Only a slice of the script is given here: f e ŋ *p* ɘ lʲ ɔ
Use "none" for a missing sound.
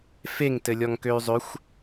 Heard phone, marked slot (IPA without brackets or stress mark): t